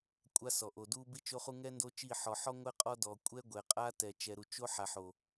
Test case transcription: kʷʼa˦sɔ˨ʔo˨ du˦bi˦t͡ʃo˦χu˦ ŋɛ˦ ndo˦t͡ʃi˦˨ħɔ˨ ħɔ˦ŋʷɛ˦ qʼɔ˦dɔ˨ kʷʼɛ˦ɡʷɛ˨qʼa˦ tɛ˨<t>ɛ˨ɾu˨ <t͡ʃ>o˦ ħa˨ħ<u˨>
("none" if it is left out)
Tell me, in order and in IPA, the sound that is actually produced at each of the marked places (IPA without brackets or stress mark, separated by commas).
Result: t͡ʃ, t͡ʃ, o˨